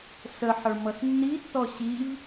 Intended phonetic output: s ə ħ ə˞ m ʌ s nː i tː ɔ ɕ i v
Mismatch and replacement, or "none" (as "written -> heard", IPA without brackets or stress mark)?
none